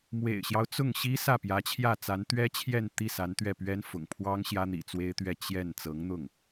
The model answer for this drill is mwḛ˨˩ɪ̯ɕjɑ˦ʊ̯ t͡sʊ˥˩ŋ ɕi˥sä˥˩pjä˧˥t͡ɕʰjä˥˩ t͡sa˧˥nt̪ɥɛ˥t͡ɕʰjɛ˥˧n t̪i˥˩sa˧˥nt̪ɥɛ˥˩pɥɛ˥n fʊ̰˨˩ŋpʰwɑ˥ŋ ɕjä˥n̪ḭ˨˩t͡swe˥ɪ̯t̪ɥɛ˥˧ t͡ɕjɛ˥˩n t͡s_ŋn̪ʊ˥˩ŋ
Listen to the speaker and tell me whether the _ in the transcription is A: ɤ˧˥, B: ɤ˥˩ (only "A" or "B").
A